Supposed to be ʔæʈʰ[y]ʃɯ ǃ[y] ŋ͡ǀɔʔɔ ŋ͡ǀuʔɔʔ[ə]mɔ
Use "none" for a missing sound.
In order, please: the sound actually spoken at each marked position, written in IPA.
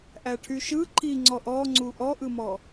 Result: y, i, ɯ

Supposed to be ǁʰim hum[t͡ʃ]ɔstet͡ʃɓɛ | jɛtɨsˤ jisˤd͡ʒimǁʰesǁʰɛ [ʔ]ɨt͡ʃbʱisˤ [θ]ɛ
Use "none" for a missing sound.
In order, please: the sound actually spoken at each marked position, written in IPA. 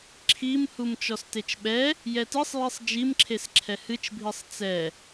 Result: t͡ʃ, h, t͡s

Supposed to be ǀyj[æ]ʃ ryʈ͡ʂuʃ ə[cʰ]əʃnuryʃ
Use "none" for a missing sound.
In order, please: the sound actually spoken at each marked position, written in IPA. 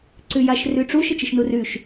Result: a, t͡ʃ

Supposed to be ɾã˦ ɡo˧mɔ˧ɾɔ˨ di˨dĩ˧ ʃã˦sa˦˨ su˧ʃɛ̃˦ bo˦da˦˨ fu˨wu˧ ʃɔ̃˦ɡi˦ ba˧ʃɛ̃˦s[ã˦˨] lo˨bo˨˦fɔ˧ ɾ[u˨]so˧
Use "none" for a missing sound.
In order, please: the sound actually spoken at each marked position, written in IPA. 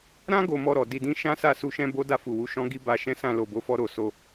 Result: ã˦˨, o˨

